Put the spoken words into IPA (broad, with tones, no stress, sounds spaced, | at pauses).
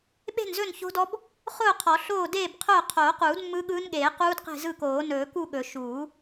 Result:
ɓ e̤˥˨ n z ɵ˥˨ n ç o̤˦˥ d ɔ˦˥ b | χ ʊː˥˨ qʰ ɔ˨˩˦ ɬ oː˥˨ d eː˥˨ b qʰ ʊː˥˨ qʰ oː˨˩˦ q uː˨˩˦ d mː ɯ˦˥ ɠ ɯː˦˥ n ɠ eː˨˩˦ q uː˦˥ d q e̤˥˨ z ɯ˥˨ k oː˨˩˦ n ɵː˨˩˦ k u˥˨ ɠ ɵ˨˩˦ ʃ uː˨˩˦